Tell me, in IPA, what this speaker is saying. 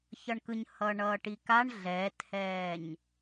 ç ʌ ɳ k ɯ ɲ h ʌː ɳ ʌː ʈ i k a ɳ ɮ ɛː t h ɛː ɲ

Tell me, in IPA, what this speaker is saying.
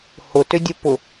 h ʊ t ʏ dʲ ʊ p ʊ

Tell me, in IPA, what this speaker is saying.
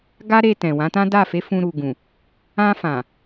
ɡ a˦ ɾ e˧ t ɛ̃˨ w ã˨˦ t ã˦ d a˦˨ f e˨˦ f ũ˧ ɾ u˨ ɡ ũ˨ | ã˧ f ã˨

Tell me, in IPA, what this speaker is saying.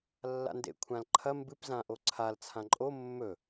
lː a̰ n d ḛ kʷʰ ã l ǃʰ ɐ m b ɨ p z ã ʔ o ǀʰ a l t͡sʰ ã ǃʼ o mː ɵ

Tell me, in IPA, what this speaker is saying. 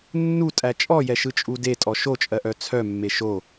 nː u tʼ æ t͡ʃʼ ɔ j ɛ ʃ ɯ t͡ʃʼ u d e tʼ ɔ ʃ o t͡ʃʼ ɜ ʔ œ t͡sʰ œ mː e ʃ o

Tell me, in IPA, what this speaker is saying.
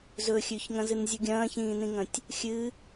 z ɵ xʲ ʉ ç ŋ ɐ̃ z ɨ n zʲ u ɡʲ ɐ̃ː ç ĩː n ĩ ŋ ɐ̃ tʲ | xʲ ɨ

